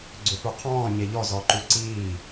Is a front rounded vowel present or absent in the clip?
present